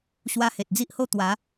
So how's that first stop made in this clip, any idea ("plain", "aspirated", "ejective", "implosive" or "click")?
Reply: plain